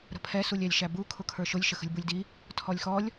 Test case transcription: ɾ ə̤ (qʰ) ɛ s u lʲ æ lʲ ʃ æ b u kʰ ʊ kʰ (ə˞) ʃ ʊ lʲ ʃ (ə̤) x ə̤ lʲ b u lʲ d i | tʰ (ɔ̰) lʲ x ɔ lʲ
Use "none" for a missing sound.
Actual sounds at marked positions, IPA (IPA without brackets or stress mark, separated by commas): pʰ, ə˞, ə, ɔ